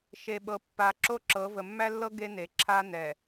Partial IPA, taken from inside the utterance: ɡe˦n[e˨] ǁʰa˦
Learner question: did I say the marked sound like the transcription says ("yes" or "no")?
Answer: yes